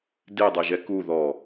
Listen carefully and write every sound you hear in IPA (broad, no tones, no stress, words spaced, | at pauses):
dedˤɛʒɛ ku ðɔ